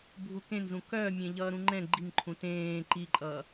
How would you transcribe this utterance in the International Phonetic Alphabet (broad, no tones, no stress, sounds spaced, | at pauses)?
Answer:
bʱ u k ẽ n z ũ k œ mʲ ẽ ʎ ʌː ɾ ũ ŋ͡ǃ ɛ̃ ɡ͡ǃ i ŋ ǃʰ ũ t ẽː ǃ i ǃʼ ʌː